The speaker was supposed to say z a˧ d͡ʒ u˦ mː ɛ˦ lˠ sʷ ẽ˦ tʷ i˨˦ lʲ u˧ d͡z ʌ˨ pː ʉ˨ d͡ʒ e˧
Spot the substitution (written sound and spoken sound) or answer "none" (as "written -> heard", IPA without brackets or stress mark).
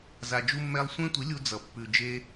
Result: none